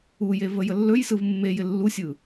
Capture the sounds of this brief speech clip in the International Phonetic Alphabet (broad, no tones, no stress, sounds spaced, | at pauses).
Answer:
u j e v ə j ə lː ɵ j s ɯ v mː e j ɪ lː u sʲ ɯ